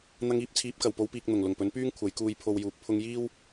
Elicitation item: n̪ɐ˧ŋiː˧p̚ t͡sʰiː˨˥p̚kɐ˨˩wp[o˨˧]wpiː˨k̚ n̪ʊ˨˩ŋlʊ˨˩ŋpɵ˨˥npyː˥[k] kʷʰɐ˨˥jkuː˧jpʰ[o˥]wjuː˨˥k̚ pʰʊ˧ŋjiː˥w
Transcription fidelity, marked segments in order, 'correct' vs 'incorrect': correct, incorrect, incorrect

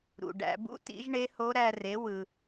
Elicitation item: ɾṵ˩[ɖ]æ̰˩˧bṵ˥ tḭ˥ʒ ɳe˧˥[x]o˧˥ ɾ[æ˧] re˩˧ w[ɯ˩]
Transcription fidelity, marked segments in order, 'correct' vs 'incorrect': correct, incorrect, correct, correct

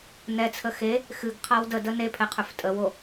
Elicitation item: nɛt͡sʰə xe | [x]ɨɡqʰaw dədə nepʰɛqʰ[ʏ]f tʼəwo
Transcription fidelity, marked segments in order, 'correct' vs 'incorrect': correct, correct

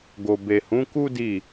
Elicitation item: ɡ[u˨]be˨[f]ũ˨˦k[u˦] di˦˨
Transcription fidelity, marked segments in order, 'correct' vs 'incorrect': incorrect, incorrect, correct

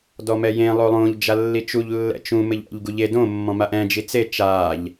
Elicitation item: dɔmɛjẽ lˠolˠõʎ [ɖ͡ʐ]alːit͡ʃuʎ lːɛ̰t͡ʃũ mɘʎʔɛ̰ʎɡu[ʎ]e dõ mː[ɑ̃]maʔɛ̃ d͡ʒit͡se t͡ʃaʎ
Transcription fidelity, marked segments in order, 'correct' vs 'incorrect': incorrect, correct, incorrect

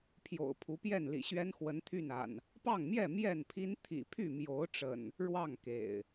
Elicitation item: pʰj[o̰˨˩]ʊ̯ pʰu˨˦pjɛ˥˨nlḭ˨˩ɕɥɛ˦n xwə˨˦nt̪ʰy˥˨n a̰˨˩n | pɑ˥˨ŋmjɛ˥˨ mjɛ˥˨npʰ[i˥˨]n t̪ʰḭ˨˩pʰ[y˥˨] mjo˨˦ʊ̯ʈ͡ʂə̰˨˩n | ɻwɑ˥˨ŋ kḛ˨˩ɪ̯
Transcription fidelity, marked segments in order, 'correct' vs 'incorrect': correct, incorrect, correct

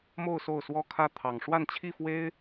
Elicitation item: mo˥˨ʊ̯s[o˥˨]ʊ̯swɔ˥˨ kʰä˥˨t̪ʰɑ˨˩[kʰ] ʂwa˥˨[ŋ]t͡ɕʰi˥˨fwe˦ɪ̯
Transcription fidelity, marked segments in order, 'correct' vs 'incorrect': correct, incorrect, incorrect

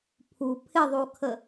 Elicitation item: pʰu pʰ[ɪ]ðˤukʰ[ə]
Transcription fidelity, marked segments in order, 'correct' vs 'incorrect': correct, correct

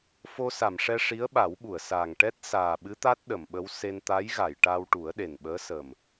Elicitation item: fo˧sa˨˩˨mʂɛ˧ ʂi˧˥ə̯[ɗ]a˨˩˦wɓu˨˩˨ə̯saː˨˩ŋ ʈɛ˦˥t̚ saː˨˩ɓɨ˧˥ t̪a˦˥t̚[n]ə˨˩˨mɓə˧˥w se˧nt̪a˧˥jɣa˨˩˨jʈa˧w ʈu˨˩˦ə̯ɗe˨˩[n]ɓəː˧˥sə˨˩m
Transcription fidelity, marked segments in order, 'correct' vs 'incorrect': incorrect, incorrect, correct

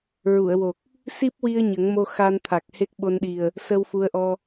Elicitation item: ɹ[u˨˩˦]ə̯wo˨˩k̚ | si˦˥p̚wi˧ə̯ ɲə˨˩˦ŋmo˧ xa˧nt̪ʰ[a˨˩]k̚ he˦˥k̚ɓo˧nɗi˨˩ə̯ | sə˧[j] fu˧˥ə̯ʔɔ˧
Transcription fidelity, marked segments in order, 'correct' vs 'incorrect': incorrect, correct, incorrect

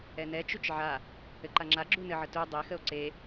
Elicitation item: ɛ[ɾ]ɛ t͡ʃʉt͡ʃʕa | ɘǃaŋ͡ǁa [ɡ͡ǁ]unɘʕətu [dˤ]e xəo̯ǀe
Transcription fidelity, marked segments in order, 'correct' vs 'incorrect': incorrect, correct, correct

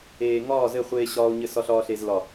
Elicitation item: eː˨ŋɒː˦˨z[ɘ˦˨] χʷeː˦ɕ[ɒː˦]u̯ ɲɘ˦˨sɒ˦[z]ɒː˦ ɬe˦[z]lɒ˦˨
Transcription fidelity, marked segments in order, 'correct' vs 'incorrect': correct, correct, incorrect, correct

